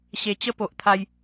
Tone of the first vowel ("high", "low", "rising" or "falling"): low